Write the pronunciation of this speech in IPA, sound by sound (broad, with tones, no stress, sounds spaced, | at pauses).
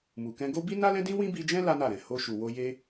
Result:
m u˨ k ɛ̃˧ ɡ o˦ b i˦ n a˦ l ɛ̃˦ d ĩ˦ w ĩ˦ b i˧ d͡ʒ ɛ̃˦ l a˦ n a˦˨ ɾ ɛ̃˨ h o˧ ʃ u˨ w o˧ j e˧